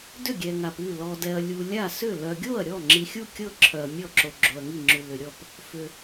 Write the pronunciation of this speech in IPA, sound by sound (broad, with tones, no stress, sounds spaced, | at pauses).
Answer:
d ʏ˥˩ ɡʲ ɛ˨ ŋ a˨ p ʉ˥˩ l ɔ˨ d ɛ˨ ɐ̯ lʲ u˨ lʲ a˥˩ s ʏ˥˩ l œ˨ ɡʲ o˥˩ ɐ̯ ɾʲ ɔ˥˩ ŋ͡ǁ i˨ xʲ u˥˩ kʲ ɤ˥˩ ǁʰ œ˨ ɐ̯ mʲ ɔ˥˩ ǁ o˨ ɡ͡ǁ o˨ ɐ̯ ŋ i˥˩ ŋ͡ǁ ʉ˨ l ʏ˨ ɾʲ ɔ˥˩ p | f ʏ˨